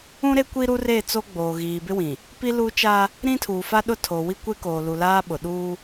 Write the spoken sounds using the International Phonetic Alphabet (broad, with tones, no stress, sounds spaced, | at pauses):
ũ˦ ɾ e˦ kʷ i˦ ɾ u˦ r e˦˨ t͡s o˦ ɡ͡b oː˨ ɣ iː˨ b ɪ˦ w ĩ˨ | p i˦ l uː˦ t͡ʃ aː˦ | ɾ ĩ˦ tʰ uː˨ f a˦ ɗ ʊ˦ tʰ o˨ w i˦ kʷ e˦ k oː˨ l u˨ l aː˦ ɓ ʊ˨ ɗ uː˦